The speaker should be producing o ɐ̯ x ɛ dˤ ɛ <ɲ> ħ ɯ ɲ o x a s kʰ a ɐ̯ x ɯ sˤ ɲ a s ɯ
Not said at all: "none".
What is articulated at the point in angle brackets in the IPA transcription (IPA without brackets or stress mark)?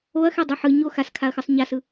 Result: none